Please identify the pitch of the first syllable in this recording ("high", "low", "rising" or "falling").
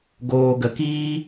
low